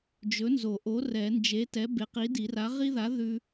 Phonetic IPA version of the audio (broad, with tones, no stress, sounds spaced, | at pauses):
d͡ʒ ɵ˨˥ n z o˨˩˦ ʔ o˨˥ r ɛ˨˩˦ n d͡ʒ e˨˥ t ɛ˨˥ b e˨˥ q i˨˥ d i˨˩˦ r a˨˥ ʁ i˦ ð a˨˥ ð ʉ˦